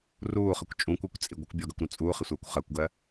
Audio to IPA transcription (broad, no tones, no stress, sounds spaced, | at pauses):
r uː χ ə kʷ t͡ʃʼ ũ kʷ ɪː kʷ t͡sʼ i ɡʷ ə kʷ bʲ ɔ ɡ ɜ kʷ ɾ ũ t͡sʼ uː χ ɪ sʷ ɜː kʷ χ ɜ kʷ ɡ ɜ